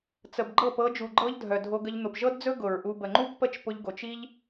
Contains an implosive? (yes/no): no